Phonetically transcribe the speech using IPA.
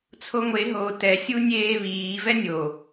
t͡sʰoŋʷe ɦo tɛ sʲunʲeːβiː vɛnʲo

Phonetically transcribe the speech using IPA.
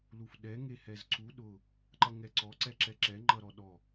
lufɗɛ ŋehɛzǀu ɗʊ | ǃʌŋɛǀɔ ǀɛǁɛǁɛ ŋ͡ǃʌɾɔɗɔ

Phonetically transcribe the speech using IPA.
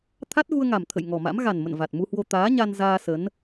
t̪ʰa˦˥t̚ɣu˧ə̯ŋa˨˩mt̪ʰə̰˧˨j ŋɔ˨˩ma̰˧˥m ɣa˨˩nmə̰˧˨n va˨˩t̚mu˧hwo˧ t̪aː˨˦ɲa˧nzaː˧ sə˨˦n

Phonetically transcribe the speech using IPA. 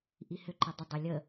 ʔihʏǃɛ dˤə dˤə lʲə

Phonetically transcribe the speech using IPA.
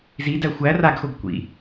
zidæ xʷæ raɡxoɡ kʷḭ

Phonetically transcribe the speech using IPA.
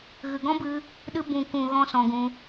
ɣɨ˨ɡɔ̃˦bɨ˧ | ɗɨ˧ bũ˨kũ˨ ɣɔ̃˦sɔ̃˧ɡũ˧

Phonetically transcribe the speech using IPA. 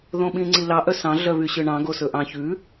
ðõɓĩŋ͡ǀilɑ ʔœsɑ̃ ɮœβyɕøɳɑ̃ ɡosɵʔɑ̃ çʉ

